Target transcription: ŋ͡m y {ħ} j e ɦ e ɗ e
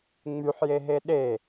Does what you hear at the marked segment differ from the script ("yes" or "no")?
no